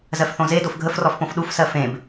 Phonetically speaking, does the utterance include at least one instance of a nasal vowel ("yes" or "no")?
yes